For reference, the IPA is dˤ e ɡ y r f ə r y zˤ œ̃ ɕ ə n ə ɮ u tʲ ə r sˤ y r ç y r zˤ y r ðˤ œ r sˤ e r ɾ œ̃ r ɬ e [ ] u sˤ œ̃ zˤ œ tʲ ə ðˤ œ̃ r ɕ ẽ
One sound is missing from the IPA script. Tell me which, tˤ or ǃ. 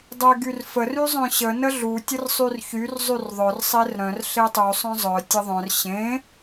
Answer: tˤ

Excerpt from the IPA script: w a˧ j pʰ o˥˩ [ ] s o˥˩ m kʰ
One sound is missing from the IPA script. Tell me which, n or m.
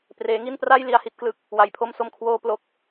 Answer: m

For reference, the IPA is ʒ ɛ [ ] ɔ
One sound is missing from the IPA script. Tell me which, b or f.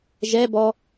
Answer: b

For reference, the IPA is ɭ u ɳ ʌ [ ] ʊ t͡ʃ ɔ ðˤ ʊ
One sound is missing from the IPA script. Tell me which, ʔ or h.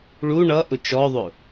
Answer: ʔ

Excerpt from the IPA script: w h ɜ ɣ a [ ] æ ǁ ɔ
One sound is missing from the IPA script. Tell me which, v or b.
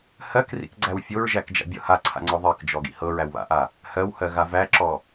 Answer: v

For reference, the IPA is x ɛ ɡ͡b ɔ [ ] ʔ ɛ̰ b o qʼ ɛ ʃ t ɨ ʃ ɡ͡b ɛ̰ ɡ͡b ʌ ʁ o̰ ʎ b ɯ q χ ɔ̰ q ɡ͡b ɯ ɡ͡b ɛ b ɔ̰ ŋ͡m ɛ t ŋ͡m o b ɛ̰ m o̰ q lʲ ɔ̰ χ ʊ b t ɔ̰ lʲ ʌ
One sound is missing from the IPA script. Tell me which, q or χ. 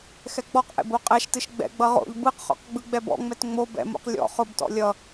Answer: q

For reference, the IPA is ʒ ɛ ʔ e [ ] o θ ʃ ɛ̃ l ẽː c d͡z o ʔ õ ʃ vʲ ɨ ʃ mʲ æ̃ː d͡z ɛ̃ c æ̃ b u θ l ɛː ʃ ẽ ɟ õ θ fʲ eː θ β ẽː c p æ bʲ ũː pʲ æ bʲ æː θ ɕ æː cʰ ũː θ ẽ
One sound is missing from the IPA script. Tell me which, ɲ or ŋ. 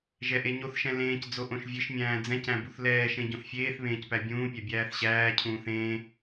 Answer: ɲ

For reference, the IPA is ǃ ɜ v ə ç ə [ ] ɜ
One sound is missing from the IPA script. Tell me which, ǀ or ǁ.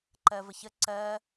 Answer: ǀ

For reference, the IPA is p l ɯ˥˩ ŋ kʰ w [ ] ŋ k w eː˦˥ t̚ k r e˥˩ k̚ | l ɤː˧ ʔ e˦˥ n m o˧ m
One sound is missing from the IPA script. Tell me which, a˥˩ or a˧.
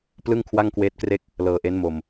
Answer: a˥˩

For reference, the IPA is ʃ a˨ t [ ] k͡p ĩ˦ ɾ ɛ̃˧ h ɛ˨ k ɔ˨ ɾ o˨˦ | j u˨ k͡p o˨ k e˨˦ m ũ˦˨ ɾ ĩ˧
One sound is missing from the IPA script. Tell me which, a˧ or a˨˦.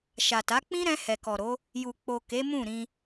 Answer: a˨˦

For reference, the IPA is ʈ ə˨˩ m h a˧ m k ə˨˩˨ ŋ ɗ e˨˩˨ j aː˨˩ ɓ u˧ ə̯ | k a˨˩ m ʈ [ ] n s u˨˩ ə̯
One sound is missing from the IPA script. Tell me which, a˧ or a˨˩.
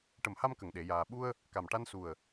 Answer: a˧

